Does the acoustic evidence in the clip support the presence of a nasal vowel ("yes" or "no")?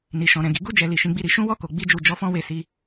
yes